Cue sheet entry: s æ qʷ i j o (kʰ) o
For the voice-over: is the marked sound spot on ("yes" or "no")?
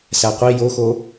no